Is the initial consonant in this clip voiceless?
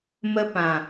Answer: no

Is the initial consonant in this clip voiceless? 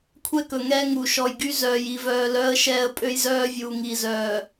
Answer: yes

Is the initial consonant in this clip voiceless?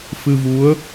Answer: yes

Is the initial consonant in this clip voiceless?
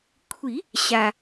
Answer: yes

